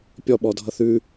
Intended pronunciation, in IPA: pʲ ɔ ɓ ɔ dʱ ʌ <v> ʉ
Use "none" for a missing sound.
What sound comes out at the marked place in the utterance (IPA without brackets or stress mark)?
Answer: θ